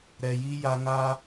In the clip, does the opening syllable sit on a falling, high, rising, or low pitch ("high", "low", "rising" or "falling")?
low